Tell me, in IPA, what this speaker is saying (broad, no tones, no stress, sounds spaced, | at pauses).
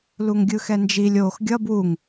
l u ŋ ɡʲ ɯ x ɛ n d͡ʒ i lʲ oː x ɡʲ ʌ b w u ŋ